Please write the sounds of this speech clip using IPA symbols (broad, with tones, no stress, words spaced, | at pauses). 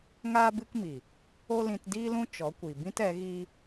ŋaː˦bɨ˦kmi˨ | o˦lĩ˧tdiː˦lũ˦ t͡ʃɔ˨˦kʷi˨ bĩ˦tɛ˨˦ɣiː˦